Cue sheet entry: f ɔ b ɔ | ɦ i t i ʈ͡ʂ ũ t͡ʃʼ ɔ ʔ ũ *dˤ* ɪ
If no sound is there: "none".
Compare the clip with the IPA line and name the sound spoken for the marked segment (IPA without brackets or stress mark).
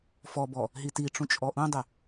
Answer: dˤ